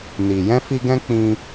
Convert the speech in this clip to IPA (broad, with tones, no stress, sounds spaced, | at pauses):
n i˨ j ɛ̃˧ f i˧ ɡ ɛ̃˧ k͡p ĩ˧